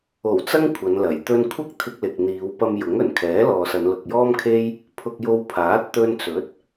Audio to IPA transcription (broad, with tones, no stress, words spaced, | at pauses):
o˨˩w t͡sɐ˥ŋkʷʰɐ˨˧nlɐ˨˩j t̪ɵ˧nkʷʰɐ˥k̚ t̪ʰɪ˧k̚lɪ˨k̚ n̪iː˨˧wpɐ˧mjʊ˨˥ŋɵ˨˩n kʰɛː˨˥lɔː˨sɐ˨˧n lʊ˨k̚jɔː˥mkʰe˥j | pʰʊ˧k̚jo˧w pʰaː˨˥t̚t̪ɵ˧n t͡sɵ˨˥t̚